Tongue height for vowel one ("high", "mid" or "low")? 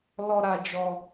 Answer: mid